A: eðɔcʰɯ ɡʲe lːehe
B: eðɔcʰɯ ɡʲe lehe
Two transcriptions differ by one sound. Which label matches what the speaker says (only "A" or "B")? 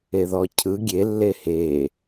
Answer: A